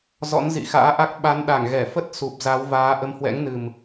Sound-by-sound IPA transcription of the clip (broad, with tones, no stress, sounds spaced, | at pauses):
z ɔ̰˧˥ n z ḭ˧˨ x a̰ː˧˥ ʔ a˦˥ k̚ ɓ a˨˦ n ɗ a˧˩ ŋ ɣ ɛ˧˩ f ə˦˥ t̚ s u˨˩ p̚ z a˨˦ w v aː˨˦ ʔ ə˨˦ m h w ɛ̰˧˥ ŋ n ɨ˨˩ m